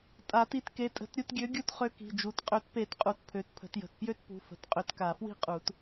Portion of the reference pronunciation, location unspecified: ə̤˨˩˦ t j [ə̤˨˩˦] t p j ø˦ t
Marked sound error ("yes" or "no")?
yes